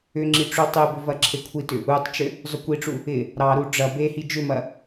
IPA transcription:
ʏ ŋ͡ǁ i ʈ͡ʂ u tˤ e b ʏ v ɐ ǁʰ e kʷʰ i t ʏ | u tˤ t͡ʃ ʏ | zˤ ʏ kʷ i ʈ͡ʂ u | ɪ | ɾ ɑ ɾ u ɖ͡ʐ ɐ b e h i d͡ʒ ʏ m ɐ

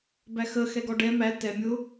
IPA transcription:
b æ x ə x ɛ ɡ ɔ ɖ ɛ m æ t ɛ mʲ ʊ

